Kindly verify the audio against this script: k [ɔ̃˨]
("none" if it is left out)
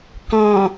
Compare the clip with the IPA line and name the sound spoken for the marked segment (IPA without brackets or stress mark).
ɔ̃˨